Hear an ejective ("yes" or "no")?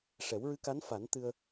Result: no